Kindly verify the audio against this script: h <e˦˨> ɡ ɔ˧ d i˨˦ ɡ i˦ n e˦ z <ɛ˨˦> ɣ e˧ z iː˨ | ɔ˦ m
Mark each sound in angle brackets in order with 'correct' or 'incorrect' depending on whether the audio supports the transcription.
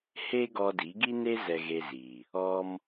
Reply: incorrect: e˦, incorrect: ɛ˧

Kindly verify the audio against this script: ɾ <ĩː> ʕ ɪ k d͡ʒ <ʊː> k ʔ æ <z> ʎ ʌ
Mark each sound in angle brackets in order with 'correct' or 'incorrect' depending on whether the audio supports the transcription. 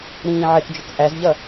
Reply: correct, incorrect: ʊ, correct

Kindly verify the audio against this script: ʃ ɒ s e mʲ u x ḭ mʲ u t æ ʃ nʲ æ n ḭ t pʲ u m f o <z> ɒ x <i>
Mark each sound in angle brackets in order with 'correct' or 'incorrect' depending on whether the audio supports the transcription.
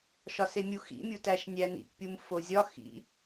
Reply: incorrect: zʲ, incorrect: ḭ

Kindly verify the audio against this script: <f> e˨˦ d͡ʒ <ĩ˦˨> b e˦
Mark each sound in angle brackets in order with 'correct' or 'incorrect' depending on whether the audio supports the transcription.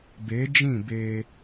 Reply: incorrect: b, correct

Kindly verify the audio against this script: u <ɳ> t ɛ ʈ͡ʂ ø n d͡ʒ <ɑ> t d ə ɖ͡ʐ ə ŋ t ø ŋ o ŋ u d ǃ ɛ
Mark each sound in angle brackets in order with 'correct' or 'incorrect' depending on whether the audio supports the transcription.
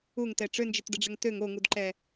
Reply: incorrect: ŋ, incorrect: ə

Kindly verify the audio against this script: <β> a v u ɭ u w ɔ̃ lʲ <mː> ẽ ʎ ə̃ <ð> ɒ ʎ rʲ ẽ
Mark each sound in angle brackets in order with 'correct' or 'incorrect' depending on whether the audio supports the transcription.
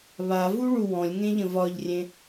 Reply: correct, incorrect: ŋ, incorrect: v

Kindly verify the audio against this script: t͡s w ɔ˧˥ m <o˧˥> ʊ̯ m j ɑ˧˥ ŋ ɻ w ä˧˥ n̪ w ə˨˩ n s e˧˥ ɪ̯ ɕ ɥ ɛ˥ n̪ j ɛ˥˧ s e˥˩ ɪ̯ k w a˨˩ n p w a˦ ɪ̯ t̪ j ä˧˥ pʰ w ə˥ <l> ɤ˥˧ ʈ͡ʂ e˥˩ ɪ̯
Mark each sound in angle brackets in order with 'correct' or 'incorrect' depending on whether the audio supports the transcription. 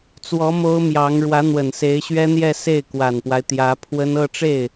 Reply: incorrect: o˥, incorrect: n

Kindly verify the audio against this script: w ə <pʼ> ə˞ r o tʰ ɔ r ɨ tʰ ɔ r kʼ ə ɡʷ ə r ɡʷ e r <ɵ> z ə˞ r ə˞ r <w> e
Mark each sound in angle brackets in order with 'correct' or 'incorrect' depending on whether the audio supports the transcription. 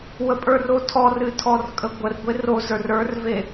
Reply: correct, incorrect: o, incorrect: v

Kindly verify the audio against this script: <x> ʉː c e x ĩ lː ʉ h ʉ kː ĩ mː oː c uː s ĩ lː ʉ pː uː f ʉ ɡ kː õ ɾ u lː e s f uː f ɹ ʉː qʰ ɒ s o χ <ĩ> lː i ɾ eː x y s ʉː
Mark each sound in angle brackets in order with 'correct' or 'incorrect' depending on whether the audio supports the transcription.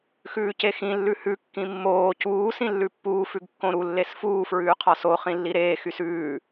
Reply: correct, correct

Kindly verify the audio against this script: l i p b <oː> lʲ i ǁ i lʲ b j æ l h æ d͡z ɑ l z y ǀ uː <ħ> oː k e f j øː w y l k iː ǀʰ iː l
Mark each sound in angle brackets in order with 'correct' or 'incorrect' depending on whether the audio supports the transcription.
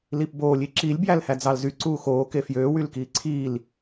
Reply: correct, incorrect: x

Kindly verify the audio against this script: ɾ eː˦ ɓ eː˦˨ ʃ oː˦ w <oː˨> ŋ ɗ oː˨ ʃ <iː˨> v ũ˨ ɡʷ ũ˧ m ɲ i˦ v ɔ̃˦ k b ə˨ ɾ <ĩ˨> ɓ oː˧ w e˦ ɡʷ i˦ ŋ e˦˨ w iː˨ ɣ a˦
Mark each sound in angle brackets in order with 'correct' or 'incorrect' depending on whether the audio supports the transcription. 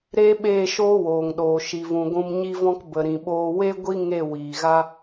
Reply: correct, incorrect: i˨, correct

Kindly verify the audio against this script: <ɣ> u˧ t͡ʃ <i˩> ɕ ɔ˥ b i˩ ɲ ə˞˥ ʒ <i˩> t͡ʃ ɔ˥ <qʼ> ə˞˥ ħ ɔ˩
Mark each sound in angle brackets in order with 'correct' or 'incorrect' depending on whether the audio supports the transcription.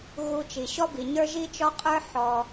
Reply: correct, correct, incorrect: i˥, correct

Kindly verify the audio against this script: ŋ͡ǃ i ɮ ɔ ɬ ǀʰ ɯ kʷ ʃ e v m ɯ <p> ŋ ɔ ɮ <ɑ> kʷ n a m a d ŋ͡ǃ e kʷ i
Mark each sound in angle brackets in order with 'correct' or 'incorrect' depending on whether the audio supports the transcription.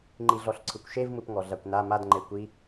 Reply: correct, incorrect: a

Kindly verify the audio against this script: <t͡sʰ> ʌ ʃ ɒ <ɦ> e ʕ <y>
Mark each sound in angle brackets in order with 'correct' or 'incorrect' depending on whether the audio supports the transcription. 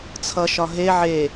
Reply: correct, correct, incorrect: e

